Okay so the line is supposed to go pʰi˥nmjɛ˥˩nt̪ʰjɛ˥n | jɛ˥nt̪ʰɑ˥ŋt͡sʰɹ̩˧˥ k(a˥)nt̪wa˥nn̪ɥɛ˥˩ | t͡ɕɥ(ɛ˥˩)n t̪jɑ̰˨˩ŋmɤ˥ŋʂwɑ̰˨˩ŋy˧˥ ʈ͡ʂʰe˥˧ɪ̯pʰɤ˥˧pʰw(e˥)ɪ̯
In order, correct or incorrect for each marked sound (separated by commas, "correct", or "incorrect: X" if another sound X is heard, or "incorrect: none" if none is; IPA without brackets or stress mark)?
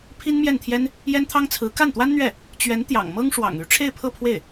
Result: incorrect: a˥˩, incorrect: ɛ˧˥, incorrect: e˥˩